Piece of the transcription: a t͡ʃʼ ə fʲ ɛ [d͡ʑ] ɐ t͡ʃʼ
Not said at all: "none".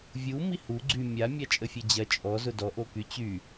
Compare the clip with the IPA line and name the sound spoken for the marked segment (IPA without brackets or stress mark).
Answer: d͡ʑ